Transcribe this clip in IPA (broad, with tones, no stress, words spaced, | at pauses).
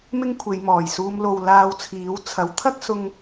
mɪ˥ŋkʷʰe˨˧jmɔː˨˩jsuː˧m lo˨w laː˧wt͡sʰiː˨˥w t͡sʰɐ˨˥wt̪ʰɐ˥k̚sʊ˧ŋ